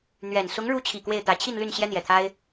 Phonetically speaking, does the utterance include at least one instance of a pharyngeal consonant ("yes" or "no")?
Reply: no